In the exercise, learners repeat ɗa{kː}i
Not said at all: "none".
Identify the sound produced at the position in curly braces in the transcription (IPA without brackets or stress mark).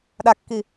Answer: kː